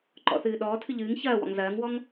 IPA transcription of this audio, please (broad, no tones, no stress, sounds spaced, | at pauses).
ǃ ɔ̰ θ ɨː ɗ ɔː tʰ ɨ ʎ ɨː ŋ ç ɐː w ɔ̰ ŋ z ɐː ŋ w ɔ ŋ